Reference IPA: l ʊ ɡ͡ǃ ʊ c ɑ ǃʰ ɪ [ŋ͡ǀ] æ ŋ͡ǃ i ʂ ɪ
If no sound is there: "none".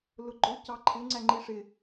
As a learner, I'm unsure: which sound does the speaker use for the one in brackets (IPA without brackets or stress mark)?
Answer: ŋ͡ǀ